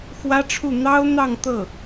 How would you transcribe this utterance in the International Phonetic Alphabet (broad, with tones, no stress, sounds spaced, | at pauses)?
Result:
x w ä˥ ʈ͡ʂʰ u˥˩ n̪ ɑ˥ ʊ̯ n̪ ɑ˥˧ ŋ t̪ ɤ˥˩